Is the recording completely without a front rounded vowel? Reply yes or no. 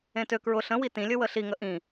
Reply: no